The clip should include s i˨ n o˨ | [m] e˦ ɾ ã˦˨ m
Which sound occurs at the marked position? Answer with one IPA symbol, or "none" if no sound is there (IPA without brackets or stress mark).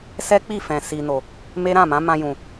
m